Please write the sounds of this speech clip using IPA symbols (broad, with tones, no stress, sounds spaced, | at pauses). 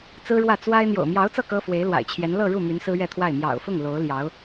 t͡s ɹ̩˥ ɻ w ä˥˩ t͡s w a˥ ɪ̯ n̪ j o̰˨˩ ʊ̯ m j ɑ˧˥ ʊ̯ t͡s ɤ˥˩ k ɤ˥ f w e˧˥ ɪ̯ l w a̰˨˩ ɪ̯ t͡ɕʰ j ɛ˧˥ n l ɤ˥˧ ɻ u˥˩ m y˧˥ n s ɹ̩˥ ɥ ɛ˥˧ t̪ʰ w a˥˩ ɪ̯ m j ɑ̰˨˩ ʊ̯ f ʊ˥˩ ŋ l o˧˥ ʊ̯ l j ɑ˧˥ ʊ̯